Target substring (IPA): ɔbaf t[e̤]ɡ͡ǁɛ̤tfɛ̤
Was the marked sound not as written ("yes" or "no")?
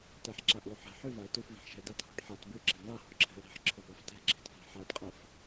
yes